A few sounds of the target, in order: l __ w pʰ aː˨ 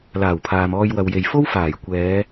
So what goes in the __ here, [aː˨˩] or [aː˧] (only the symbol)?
aː˨˩